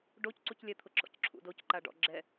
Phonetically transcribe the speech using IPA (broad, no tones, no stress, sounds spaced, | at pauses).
ɖ o c ǀ u c lʲ ɛ t̪ʰ ʊ ǁ ɔ̰ c ǁʰ ṵ d o c ǃ a ɖ ɔ̰ ɡ͡ǁ ɛ